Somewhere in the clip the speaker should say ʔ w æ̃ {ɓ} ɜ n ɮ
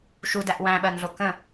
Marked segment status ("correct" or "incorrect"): correct